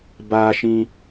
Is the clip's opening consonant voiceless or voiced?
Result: voiced